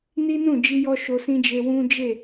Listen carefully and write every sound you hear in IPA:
n i˦ n ũ˦˨ d͡ʒ i˧ j ɔ˧ ʃ o˧ s ĩ˦ d͡ʒ e˧ w ũ˦ d͡ʒ e˦˨

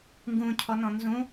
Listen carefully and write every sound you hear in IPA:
ŋ ɡ ũ cʰ ɔ n ɔ̃ n z ũ

